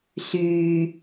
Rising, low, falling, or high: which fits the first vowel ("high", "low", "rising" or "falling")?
low